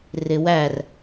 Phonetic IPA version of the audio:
rɪwær

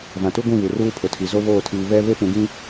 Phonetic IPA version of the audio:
vã˨tu˦ɡʷĩ˦˨ βu˨ruː˦pʰʊ˨tʰi˨ zo˦βoː˦˨tʰiː˨ βɛ˦ βe˦pũ˨ɡĩ˦

